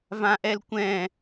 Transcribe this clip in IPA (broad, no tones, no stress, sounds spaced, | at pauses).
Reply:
v ã ʔ ɛ l kʷ ɛ̃